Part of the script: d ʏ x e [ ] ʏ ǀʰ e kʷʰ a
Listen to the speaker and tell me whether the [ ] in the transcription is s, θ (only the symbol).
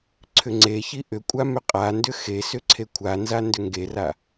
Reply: s